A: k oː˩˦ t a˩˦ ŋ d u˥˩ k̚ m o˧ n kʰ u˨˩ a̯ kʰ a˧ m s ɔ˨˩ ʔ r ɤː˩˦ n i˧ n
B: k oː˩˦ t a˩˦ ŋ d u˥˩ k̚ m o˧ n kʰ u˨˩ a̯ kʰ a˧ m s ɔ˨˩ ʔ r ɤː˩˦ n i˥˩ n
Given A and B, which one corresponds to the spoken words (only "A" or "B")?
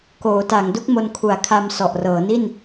B